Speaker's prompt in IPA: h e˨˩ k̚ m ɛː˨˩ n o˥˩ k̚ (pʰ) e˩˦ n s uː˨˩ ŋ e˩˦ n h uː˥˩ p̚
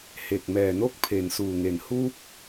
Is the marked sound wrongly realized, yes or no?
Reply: no